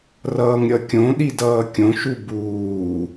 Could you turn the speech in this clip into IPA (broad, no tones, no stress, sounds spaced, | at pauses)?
r ʌː ŋ ɾʲ ʌ kʲ õ ɗ i d ʌː kʲ õ ʃ u b uː